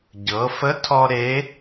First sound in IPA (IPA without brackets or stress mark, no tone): ɟ